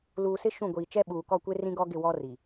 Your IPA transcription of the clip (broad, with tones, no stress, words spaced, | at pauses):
luː˨sɪ˦ ʃũ˦˨ɡʷiː˨ t͡ʃɛ˦ɓuː˨ kɔ˦˨kʷe˦ rĩ˦ɡɔ˦ ɡɪ˦˨wɔ˦ ri˨